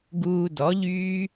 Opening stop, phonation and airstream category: plain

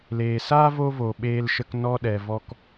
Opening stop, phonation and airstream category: implosive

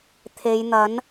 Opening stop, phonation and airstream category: aspirated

